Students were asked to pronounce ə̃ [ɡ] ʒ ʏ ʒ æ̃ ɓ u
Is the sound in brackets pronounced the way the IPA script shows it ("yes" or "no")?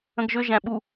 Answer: yes